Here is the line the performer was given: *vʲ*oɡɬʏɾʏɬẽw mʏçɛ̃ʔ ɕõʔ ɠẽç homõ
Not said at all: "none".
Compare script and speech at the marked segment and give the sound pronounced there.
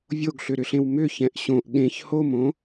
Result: vʲ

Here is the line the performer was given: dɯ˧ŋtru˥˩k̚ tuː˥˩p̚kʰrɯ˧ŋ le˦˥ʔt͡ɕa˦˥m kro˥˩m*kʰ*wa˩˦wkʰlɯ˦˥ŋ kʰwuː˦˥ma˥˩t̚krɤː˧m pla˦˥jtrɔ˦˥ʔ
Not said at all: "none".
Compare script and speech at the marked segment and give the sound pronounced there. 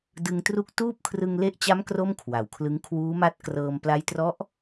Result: kʰ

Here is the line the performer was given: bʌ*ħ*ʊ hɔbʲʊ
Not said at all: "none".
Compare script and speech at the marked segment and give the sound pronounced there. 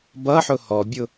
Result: ħ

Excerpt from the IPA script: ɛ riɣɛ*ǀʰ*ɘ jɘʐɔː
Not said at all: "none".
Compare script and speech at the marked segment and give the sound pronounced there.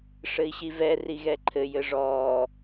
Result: ǃʰ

